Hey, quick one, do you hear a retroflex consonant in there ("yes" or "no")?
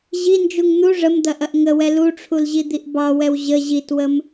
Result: yes